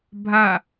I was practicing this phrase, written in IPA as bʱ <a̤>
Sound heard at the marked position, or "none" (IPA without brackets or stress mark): a